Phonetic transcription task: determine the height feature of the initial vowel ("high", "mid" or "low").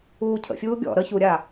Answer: high